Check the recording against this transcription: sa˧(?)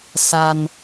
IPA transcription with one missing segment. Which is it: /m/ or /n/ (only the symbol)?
n